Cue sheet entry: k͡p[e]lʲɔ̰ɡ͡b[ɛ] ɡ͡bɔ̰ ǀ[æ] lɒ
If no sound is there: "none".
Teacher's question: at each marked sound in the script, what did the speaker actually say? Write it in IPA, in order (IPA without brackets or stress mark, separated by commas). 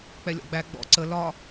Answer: ɛ, æ, ə